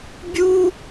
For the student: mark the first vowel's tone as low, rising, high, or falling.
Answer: high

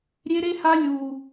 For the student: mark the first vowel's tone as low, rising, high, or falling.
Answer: high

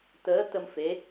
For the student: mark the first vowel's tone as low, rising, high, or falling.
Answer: rising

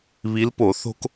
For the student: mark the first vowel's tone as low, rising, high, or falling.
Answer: rising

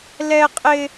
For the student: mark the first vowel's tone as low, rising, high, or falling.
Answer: high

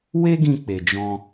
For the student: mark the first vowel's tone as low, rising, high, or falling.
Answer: high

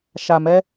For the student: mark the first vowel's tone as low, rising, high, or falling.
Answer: low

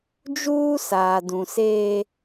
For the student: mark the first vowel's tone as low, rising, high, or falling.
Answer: high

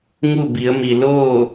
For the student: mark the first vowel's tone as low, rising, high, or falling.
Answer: falling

